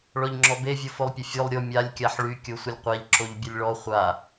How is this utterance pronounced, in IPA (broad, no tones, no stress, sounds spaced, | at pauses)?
ɭ ɔ ʎ ŋ͡ǁ ɔ b e vʲ o f o lˠ pʲ ə fʲ o lˠ ɾʲ o mʲ a lʲ kʲ a ħ ɭ y kʲ o sʷ ə lʲ qʷ a ʎ ǁ o ʎ bʲ ə lʲ ɭ ɔ χʷ a